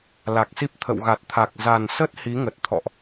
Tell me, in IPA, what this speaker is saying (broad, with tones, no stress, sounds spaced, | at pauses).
l a˨˩ k̚ s i˦˥ p̚ t̪ʰ ə̰˧˨ w ɣ a˨˩ t̚ t̪ʰ a˨˩ k̚ z a˨˩ n s ə˦˥ t̚ h i˨˦ ŋ ə˨˩ t̚ t̪ʰ ɔ̰˧˨ ʔ